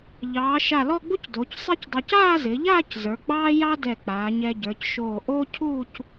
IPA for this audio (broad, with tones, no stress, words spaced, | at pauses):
ʎɑː˩˧ ʃa˧˩lɔ˥˧ɡ͡bu˥c doː˩˧csˤe˥cdˤɑ˧c aː˥˧zɪ˩˧ʎaː˥˧c zə˞˩˧ɡ͡bɑː˥jɑ˥dɛ˧˩ k͡paː˩˧ɲɛ˧ɟə˞˩˧c ʃoː˧˩ʔoː˥ cʰuː˥˧c